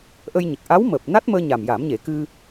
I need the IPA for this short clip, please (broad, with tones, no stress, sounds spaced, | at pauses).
ʔ ə˧ j ɲ ə˨˩ k̚ ʔ a˧˥ w m əː˨˩ p̚ n a˦˥ t̚ m əː˧ ɲ a˨˩ m j a˨˩˦ m ɲ e˨˩˦ k ɨ˧